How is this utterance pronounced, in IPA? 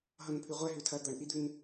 ɦʌnpʰʉʁʷɛ ɦʉtʰɐ d̪ʌɳʔid̪ʉn

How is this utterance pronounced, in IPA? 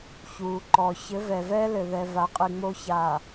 çuː˨ǃɔː˨ çɘ˨˦vɛ˨ vɛː˦lɘ˨ðɛ˨ va˨˦qʼɨ˨ ŋ͡mo˨çaː˨

